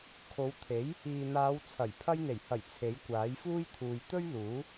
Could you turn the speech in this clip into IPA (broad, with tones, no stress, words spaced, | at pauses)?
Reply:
kʰo˨˧wt̪ʰe˨˥j | iː˨n̪aː˨˧wt͡sʰɐ˨˩j pʰɐ˧jn̪e˨˩jhɐ˨˩j t͡sʰe˨˥jkʷaː˨˥jfuː˥jt̪ʰuː˨j t̪ɵ˥ɥluː˨˥